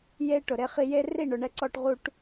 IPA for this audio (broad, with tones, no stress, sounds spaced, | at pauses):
j e˦ ʈ ʊ˨ ɾ e˧ χ i˧ j e˦ r i˦˨ ɳ ʊ˨ ɳ ɛ˧ ǀ ɔ˧ ʈ ʁ u˦ ʈ